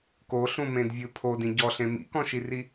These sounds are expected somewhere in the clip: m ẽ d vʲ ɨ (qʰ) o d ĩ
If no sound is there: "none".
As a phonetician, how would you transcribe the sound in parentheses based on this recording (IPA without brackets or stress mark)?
pʰ